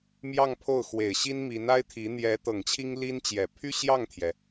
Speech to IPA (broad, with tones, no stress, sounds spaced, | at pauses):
m j ɑ˥˧ ŋ pʰ o˥˩ ʊ̯ x w e˨˩ ɪ̯ ɕ i˥ n m i˧˥ n a˥ ɪ̯ t̪ʰ i˧˥ n̪ j ɛ˧˥ t̪ ɤ˨˩ ŋ t͡ɕʰ i˥ ŋ l i˥ n t͡ɕ j ɛ˨˩ pʰ y˥ ɕ j ɑ˥˩ ŋ t̪ʰ j ɛ˩